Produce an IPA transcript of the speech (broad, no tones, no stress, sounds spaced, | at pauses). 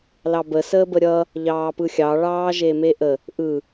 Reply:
l ɑ b ə s əː b ə ɾʲ ʌ | ʎ ɑː p ɯ xʲ ɑ ɭ ɑː ʒ e m e ʔ ə | ʔ ɯ